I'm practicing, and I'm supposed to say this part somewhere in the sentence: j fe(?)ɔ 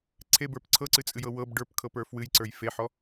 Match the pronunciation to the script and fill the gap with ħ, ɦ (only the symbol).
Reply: ħ